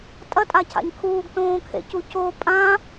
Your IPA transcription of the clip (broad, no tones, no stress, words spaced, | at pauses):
tʼɐtʼacʰa̰ɲ kʰuːɡtõːkʰḛcu co pʼã